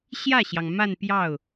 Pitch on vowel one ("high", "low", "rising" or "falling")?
falling